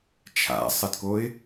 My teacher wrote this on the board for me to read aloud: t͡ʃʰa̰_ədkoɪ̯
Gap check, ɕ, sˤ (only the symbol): sˤ